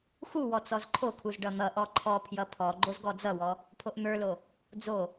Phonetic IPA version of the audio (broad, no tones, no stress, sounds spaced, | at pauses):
x u w ɔ t͡s ɔ z ǃʰ o kʰ u z ɖ ʌ n̪ ʌ ʔ ɔ ǃʰ ɔ pʰ j ʌ pʰ ɔ ɡ͡ǃ o z ɡ ɔ d͡z ʌ w ɔ | pʰ o ʔ n̪ ə˞ l o | d͡z o